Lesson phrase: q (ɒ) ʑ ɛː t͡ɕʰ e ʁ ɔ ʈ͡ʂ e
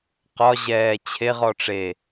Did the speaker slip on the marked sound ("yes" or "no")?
no